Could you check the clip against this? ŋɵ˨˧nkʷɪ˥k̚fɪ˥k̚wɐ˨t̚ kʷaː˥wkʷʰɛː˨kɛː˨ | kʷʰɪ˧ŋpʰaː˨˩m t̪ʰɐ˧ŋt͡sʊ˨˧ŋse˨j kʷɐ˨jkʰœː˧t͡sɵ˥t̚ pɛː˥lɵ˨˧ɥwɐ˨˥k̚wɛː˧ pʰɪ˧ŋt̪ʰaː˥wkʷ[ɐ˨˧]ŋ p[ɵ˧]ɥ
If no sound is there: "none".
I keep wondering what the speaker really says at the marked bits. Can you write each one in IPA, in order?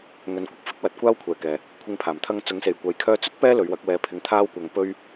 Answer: ɐ˧, ɵ˥

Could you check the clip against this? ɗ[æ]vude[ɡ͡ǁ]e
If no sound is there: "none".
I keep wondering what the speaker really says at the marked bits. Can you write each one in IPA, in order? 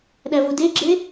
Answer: æ, ɡ͡ǁ

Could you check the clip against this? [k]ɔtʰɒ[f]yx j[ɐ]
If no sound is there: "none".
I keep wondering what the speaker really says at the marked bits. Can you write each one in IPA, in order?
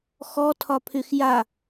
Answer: x, pʰ, a

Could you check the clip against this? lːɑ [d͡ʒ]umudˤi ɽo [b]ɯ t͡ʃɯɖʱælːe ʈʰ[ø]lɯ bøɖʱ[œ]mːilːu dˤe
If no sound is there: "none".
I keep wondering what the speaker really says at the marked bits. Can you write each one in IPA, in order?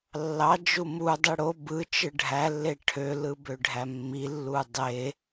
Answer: d͡ʒ, b, ø, æ

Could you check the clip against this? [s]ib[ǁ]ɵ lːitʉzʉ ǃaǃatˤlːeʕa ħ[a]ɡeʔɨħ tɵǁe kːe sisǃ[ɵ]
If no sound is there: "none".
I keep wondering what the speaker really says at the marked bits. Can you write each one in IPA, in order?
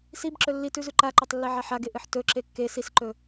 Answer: s, ǁ, a, ɵ

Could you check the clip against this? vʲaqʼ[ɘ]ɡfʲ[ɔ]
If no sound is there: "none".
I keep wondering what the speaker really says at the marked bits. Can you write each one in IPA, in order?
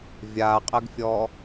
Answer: ɘ, ɔ

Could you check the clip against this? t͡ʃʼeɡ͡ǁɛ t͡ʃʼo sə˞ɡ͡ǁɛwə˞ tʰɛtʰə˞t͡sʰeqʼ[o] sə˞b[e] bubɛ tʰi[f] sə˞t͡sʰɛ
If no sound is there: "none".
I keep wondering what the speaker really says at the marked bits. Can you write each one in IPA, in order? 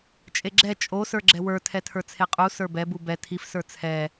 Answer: u, ɛ, f

